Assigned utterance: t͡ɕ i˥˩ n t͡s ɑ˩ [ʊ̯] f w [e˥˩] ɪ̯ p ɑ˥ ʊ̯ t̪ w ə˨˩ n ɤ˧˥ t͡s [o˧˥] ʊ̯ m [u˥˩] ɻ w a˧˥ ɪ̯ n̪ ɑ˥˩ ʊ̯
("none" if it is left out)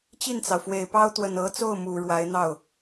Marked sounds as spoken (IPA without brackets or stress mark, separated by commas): ʊ̯, e˨˩, o˥˩, u˨˩